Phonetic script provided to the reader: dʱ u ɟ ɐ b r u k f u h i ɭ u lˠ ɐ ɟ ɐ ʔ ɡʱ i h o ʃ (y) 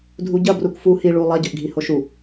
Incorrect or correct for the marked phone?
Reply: incorrect: u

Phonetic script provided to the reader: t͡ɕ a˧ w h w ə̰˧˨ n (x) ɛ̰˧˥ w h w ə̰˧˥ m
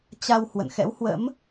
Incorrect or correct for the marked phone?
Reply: correct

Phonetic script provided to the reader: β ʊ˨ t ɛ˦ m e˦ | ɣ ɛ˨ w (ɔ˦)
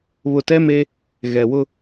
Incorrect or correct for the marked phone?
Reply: incorrect: ʊ˦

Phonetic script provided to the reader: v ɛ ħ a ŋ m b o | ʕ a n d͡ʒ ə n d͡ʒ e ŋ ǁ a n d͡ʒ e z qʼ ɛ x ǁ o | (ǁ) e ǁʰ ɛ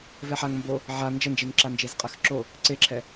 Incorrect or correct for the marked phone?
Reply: incorrect: ǀ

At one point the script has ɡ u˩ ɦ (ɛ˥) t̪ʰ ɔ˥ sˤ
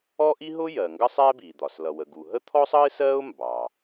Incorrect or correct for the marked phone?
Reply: incorrect: ə˥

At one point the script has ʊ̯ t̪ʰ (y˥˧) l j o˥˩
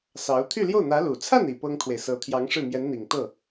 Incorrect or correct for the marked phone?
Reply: correct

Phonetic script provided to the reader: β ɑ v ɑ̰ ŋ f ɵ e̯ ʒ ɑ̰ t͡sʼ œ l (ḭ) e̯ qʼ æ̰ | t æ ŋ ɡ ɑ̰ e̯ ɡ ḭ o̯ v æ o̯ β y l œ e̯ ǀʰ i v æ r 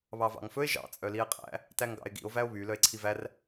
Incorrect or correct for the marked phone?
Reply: incorrect: i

